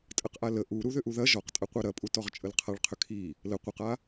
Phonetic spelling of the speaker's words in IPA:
tʼ ə q ʔ a l ə ʔ u ɾ u ð ʏ ʔ u ð ɐ ʒ ɔ q tʼ ɐ qʷ a ɾ ɐ pʼ u t ɔ ʁ t͡ʃʼ ə l qʰ a ɭ qʰ ʏ kʰ i | l ə qʷ ə q a

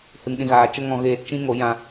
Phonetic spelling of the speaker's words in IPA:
h ɨ˨ ŋ ɗ ĩ˨ ɣ aː˨ t͡ʃ ə˦ ŋ ɔ̃˧ ɣ eː˧ t t͡ʃ ĩ˦ ŋ o˨˦ j ã˧

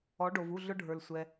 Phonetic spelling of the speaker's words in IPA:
ɔ˩˥ ɖ o˩ v u˥˩ ɮ ʊ˧ ɖʱ ə˞˩ l sʷ ɛ˩

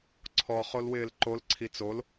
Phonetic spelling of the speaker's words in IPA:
ǀʰ ɔ χ o l w ɪː l ǃ o l ǀʰ i t͡s o l

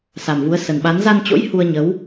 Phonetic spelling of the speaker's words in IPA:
s a˨˩ m v u˨˦ ə̯ s ə˨˩ n ɓ a˨˦ n z a˧ n t͡ɕ o̰˧˥ j h u˧ ə̯ ɲ ə˨˦ w

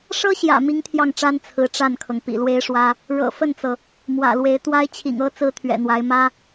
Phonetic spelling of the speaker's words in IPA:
ʂ ɤ˥ ɕ j ä̰˨˩ m i˥ ŋ t̪ʰ j ɑ˥˩ ŋ ʈ͡ʂ a˥ n t͡sʰ ɹ̩˧˥ ʈ͡ʂ a˥˩ n kʰ ɤ˩ ŋ p ḭ˨˩ l w e˥ ɪ̯ ʂ w ä˥ | ɻ ɤ̰˨˩ f ə˥˩ n t͡s ɤ˩ | m w ä̰˨˩ l w e˧˥ ɪ̯ t̪ w a˥ ɪ̯ t͡ɕʰ ḭ˨˩ ŋ ɤ˥ t͡s ɹ̩˥ t̪ʰ ɥ ɛ̰˨˩ n̪ w a˧˥ ɪ̯ m ä˥

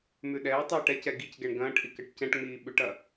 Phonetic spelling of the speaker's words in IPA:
m ʉ ɗ ɛː tˤ ɛː ʈ ɛ c ɛ ɡ i c ɡ ɛ ɳ ɡ ɐ̃ː ʈ ʔ i k ɐ ʈ c ɛ̃ ʈ ŋ͡m iː ɓ ʉ ʈ ɐ

